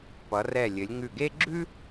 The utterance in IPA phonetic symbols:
p ʌ˩˧ r ɛ˧˩ lʲ ɘ˩˧ lʲ ŋ ʉ˧˩ ɡ e˥ ɡ͡ǁ ʉ˥

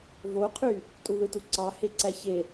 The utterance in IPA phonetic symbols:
v o qʰ y | tʼ u ð ɯ t u ǀ ɑ h e ǀ æ ç e

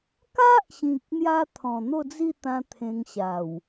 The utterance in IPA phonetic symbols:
k a˦ ʔ ɕ ĩ˨ k̚ n̪ j a˧ t̪ʰ ɔ̃˨˩ n̪ o˥˧ d͡z i˥˧ t̪ ã˧ t̪ʰ ẽ˧ ŋ ɕ a˨˩ w

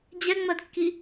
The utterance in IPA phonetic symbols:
d͡ʑ ɛ ŋ͡m ɜ d kː i

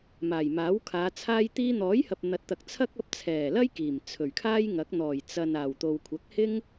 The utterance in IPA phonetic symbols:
m aː˨˩ j m aː˨˥ w kʰ aː˨˧ t͡sʰ aː˥ j t̪ iː˧ n̪ ɔː˨˥ j h ɐ˨ p̚ n̪ ɐ˨˥ t̚ t̪ ɐ˨ k̚ t͡sʰ ɐ˥ k̚ ɐ˧ p̚ t͡sʰ ɛː˨˩ l ɐ˥ j k iː˨˩ m t͡sʰ ɵ˨˩ ɥ kʰ aː˥ j ŋ ɐ˨˥ k̚ n̪ ɔː˨˩ j t͡s ɐ˨ n aː˨˩ w t̪ o˨ w kʷʰ ɐ˨˥ k̚ h ɪ˥ ŋ

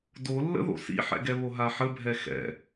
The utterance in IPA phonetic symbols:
d o lː ə̰ ð o̰ s ḭ ħ ɛ̰ ɡ ɛ β o ɦ a ħ ə bʱ ɛ x ɛ̰

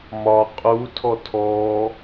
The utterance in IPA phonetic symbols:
m ɒ qʼ u tʰ ɔ tʰ ɔ

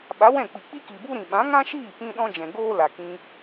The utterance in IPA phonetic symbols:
ɓ a˨˦ w ɛ̃˦˨ k͡p i˨ k͡p i˦ k i˨ b u˦ ɾ ĩ˨ ɓ ã˨˦ ŋ ã˦ ʃ iː˦˨ p ĩ˦ ɗ ɔ̃˦ d͡ʒ ɛ̃˨ ɡ oː˦ l a˨ k ĩ˧

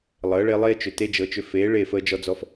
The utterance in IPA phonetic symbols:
lˠ əː˨˦ ɭ e˦ lˠ eː˦ t͡ʃ ʏ˨ t e˦ d͡ʒ ɤ˧ t͡ʃ ʏ˧ f eː˨˦ ɭ e˦˨ f əː˧ d͡ʒ ɔ˧ d͡z ɔ˧ f

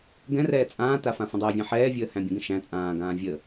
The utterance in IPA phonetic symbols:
ɡ ɛ̃ r ɛː t͡sʼ ãː t a f ã f ə̃ dˤ æ vʲ æ̃ ħ ɛː vʲ əː h æ̃ bʲ ə̃ ɡ ə̃ ʃ æ̃ t͡sʼ ãː ɡ ãː vʲ ə

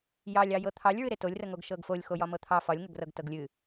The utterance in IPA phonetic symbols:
j ɑ lʲ ɑ j ɤ t̪ʰ ɑ lʲ ɹ ɨ ɾ e t o lʲ r ə ŋ o ɡ ʃ ɤ ɡ f o lʲ x o j ɒ m ɤ t̪ʰ ɑ f ɒ lʲ ŋ ə ɡ r ɤ ɡ t ɤ ɡ lʲ ɨ

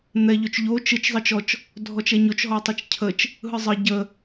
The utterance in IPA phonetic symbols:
n̪ ɛ ʎ ɵ t͡ʃ ʎ o t͡ʃ ɯ t͡ʃ zˤ ɤ t͡ʃ ɔ t͡ʃ | dʱ ɔ t͡ʃ ɛ ɲ o t͡ʃ ɦ ɔ tˤ ə t͡ʃ cʰ ə t͡ʃ | ɦ ɯ zˤ ə ɟ ə

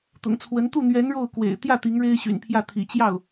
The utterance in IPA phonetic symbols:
t̪ ʊ̰˨˩ ŋ t͡sʰ w ə˧˥ n t̪ u˥˩ n̪ ɥ ɛ˧˥ n ɻ o˥˩ ʊ̯ k w ḛ˨˩ ɪ̯ t̪ j ä˥˩ t̪ i˧˥ ŋ ɻ e˥ ɪ̯ ɕ y̰˨˩ n pʰ j ä˥˩ t̪ʰ ḭ˨˩ t͡ɕ j ɑ˥˩ ʊ̯

